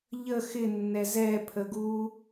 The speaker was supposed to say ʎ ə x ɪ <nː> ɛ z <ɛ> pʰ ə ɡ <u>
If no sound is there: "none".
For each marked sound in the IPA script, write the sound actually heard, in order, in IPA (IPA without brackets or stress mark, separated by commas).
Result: nː, ɛ, u